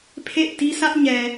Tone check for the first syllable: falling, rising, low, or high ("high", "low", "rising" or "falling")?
falling